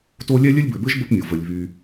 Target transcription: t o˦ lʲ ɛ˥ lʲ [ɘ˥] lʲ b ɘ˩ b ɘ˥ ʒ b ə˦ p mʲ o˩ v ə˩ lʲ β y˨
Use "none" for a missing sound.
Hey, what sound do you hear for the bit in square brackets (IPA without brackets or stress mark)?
ɘ˥